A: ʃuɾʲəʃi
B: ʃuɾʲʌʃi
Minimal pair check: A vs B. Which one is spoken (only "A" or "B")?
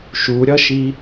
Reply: B